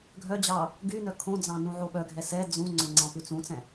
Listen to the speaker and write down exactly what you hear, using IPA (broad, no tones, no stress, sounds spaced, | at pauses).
ɡʱ œ d͡ʑ ɑ | ɡ y n œ kʰ õ d͡z ɑ̃ n ũ ʕ o ɓ œ ɡʱ ɛ s ɛ d͡z ũ ŋ͡ǀ ø ŋ͡ǀ ɑ̃ p ʉ t͡s ũ t͡s ɛ̃